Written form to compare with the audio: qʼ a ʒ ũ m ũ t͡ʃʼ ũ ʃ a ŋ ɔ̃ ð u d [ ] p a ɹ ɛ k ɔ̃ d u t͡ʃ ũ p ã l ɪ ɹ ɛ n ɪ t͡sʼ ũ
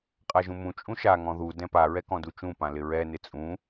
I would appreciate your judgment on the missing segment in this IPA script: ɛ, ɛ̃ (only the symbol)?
ɛ̃